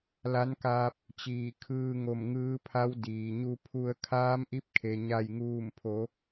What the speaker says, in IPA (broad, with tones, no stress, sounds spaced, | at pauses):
l a˧˥ n k aː˧ p̚ | t͡ɕ iː˧˩ kʰ ɯː˧ ŋ o˧˩ m ŋ ɯː˧˥ pʰ a˧˥ w d iː˩ ɲ u˧ pʰ u˧ ə̯ kʰ aː˧˥ m ʔ i˧˥ p̚ kʰ e˩ ɲ a˧˩ j ŋ uː˧˩ m pʰ o˩˧